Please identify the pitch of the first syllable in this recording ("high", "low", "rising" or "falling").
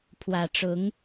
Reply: low